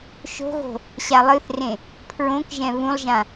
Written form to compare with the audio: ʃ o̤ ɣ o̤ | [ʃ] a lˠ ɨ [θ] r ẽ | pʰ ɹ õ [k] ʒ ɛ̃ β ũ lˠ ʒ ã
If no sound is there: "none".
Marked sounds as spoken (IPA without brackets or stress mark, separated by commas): ɕ, θ, k